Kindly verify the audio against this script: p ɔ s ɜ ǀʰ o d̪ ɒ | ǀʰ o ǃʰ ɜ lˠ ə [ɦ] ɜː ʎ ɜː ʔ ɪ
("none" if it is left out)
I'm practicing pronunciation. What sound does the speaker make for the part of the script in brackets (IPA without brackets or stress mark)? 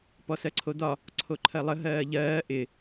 ɦ